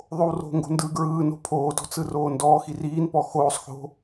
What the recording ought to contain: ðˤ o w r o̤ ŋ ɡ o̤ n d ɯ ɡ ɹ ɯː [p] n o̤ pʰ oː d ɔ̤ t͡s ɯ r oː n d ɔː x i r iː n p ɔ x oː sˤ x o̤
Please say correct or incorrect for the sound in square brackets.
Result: incorrect: none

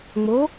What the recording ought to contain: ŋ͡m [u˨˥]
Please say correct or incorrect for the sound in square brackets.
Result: incorrect: o˨˥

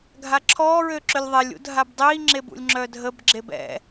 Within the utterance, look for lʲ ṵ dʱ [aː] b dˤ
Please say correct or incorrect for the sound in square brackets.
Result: incorrect: a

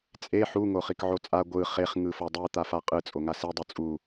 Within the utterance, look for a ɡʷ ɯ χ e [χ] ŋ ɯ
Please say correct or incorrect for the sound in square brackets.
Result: correct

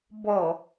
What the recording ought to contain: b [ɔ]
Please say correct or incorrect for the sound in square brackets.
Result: correct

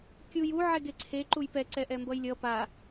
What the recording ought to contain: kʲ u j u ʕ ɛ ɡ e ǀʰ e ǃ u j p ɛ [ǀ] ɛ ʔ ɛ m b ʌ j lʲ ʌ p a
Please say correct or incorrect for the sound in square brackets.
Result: correct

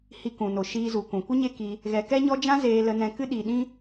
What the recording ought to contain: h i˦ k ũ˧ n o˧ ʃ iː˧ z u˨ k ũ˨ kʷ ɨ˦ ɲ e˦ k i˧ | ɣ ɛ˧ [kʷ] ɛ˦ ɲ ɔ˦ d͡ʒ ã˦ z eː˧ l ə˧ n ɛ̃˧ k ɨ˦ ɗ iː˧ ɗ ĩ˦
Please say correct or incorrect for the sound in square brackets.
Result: incorrect: k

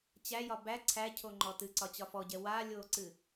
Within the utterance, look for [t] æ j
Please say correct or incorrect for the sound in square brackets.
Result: incorrect: t͡ɕ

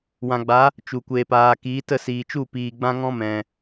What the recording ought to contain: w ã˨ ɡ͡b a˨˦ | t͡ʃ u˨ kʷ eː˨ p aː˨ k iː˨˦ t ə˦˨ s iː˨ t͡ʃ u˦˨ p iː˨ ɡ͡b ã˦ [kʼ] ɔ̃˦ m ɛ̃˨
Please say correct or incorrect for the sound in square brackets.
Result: incorrect: ŋ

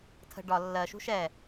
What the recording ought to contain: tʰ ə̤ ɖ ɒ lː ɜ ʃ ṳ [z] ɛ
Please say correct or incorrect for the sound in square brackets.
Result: incorrect: ʃ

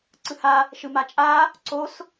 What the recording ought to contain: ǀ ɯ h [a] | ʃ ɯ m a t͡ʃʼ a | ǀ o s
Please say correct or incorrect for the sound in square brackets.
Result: correct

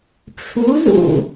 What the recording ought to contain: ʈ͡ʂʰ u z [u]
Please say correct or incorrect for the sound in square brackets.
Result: incorrect: ṵ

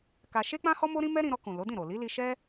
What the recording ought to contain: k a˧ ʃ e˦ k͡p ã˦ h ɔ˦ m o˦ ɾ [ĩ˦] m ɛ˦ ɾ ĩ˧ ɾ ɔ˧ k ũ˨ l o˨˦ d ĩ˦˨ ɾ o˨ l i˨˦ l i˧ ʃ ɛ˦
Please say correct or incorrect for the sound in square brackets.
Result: correct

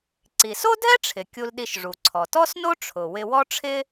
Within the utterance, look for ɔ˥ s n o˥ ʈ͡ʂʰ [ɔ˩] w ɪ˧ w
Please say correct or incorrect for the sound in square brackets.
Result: incorrect: ʊ˩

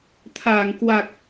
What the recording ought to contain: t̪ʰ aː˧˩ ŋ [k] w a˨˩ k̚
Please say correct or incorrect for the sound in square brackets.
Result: correct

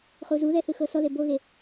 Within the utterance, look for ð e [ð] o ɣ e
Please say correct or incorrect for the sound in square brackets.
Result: incorrect: b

